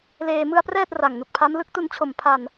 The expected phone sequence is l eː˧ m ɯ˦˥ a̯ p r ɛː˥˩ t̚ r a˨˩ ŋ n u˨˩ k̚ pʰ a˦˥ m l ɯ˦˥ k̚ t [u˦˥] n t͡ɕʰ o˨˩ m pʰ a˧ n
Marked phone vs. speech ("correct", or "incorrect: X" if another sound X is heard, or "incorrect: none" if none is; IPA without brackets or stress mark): incorrect: u˧